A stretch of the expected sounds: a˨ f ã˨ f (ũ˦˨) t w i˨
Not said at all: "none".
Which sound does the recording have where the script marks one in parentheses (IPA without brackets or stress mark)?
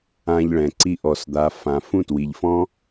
ũ˦˨